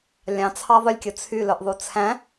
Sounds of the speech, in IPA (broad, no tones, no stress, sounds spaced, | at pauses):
lʲ ɑ̃ t͡sʰ ɑ ðˤ ɵ lʲ kʲ ɵ t͡sʰ y l œ ʔ ðˤ u t͡sʰ æ̃